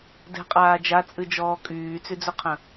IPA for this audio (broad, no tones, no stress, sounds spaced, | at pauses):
d ɛ̤ qʼ aː d͡ʒ a t͡sʼ ɨ d͡ʒ ɔː kʼ yː t͡s y d͡z ɵ qʰ ə̃